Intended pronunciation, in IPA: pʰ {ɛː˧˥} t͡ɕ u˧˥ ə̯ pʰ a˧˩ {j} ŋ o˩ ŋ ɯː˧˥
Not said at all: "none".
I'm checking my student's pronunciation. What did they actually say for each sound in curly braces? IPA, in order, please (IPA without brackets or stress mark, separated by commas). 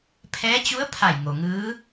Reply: ɛː˧˥, j